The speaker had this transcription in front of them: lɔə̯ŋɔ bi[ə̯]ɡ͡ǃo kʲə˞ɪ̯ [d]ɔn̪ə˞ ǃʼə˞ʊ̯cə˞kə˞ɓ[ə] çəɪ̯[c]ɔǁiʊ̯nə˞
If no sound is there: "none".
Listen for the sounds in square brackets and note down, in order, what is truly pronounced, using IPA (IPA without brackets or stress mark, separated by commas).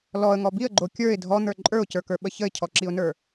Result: ə̯, dʱ, ə, cʰ